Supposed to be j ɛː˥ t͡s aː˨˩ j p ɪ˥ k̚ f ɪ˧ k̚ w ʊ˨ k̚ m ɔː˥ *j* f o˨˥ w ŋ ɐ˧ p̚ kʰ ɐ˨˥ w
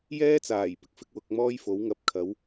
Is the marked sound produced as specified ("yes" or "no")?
yes